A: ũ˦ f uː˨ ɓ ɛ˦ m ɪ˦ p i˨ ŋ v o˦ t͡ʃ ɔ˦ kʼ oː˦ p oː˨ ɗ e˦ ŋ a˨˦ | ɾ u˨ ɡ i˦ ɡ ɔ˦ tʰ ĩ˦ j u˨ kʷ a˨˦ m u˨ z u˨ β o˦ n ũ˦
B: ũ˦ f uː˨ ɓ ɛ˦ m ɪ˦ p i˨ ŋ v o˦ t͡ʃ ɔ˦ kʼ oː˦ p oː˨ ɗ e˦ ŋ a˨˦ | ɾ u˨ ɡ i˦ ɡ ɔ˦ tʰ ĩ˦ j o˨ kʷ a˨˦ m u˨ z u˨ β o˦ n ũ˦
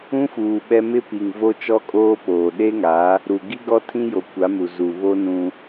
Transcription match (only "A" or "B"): B